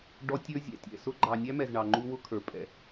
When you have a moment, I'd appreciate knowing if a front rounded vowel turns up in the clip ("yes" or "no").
no